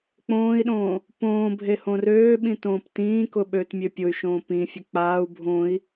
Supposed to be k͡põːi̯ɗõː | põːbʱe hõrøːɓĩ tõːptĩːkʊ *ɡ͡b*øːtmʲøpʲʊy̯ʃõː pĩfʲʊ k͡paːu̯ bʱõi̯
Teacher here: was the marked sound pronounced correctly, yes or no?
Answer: no